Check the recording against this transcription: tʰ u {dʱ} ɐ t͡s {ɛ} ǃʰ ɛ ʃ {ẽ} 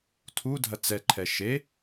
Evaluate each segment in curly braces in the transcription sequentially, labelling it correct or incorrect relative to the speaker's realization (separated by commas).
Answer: correct, correct, incorrect